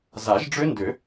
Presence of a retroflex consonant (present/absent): present